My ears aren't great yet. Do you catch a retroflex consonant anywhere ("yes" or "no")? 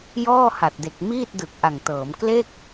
no